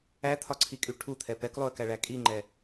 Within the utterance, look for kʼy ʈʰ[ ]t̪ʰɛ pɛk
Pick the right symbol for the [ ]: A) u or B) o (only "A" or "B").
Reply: A